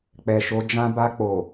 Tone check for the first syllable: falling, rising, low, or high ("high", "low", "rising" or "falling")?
low